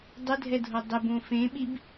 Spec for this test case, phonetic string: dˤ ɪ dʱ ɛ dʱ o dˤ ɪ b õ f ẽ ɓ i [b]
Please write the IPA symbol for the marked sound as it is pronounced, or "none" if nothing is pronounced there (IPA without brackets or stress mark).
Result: b